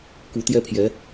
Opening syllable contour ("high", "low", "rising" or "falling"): rising